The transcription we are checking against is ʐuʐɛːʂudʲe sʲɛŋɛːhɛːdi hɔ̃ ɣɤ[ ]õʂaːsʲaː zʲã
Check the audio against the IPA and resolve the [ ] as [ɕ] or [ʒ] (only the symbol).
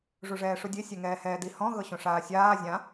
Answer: ɕ